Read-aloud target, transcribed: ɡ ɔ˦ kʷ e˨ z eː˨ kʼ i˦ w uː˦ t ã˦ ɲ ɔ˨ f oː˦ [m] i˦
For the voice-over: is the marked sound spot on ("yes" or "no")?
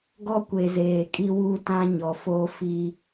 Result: no